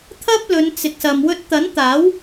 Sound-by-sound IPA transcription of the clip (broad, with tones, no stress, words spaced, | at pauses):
t̪ʰɐ˥p̚lɵ˨˧n t͡sɪ˨k̚sɐ˨m wɵ˧t̚t̪ɐ˨˥nt̪aː˨˥w